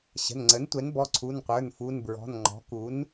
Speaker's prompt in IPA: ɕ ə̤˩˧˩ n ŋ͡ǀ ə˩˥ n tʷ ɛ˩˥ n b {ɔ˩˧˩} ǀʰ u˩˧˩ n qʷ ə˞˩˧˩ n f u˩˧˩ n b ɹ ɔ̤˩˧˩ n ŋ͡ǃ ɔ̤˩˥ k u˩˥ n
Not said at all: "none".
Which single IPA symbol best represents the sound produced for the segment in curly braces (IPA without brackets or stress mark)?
ɔ˩˧˩